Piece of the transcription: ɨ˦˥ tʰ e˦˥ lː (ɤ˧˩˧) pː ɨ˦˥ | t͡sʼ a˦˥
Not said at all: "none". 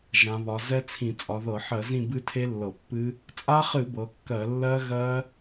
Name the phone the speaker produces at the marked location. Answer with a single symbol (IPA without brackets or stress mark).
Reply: ɤ˧˩˧